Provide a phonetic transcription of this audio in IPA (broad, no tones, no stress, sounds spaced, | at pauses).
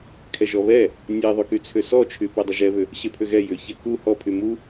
kʰ ɛ ʒ ɔ β ɛ | nʲ ɛ ðˤ y k y t͡sʰ ʏ s ɔ t͡ʃʰ y p ɛ dˤ ə ʒ ɛ β ʏ | ɕ e pʰ ʏ ɣ ɛ j ʏ ç ɛ k u h ɔ pʰ y m u